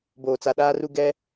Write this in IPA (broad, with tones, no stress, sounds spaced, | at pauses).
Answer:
b oː˨ t͡s a˨ ɗ aː˦ r u˦ ɡ ɛ˦